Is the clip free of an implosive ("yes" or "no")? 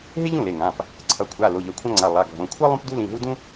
yes